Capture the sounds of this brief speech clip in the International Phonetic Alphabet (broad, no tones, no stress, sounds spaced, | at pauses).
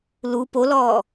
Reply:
l u p o l ɔː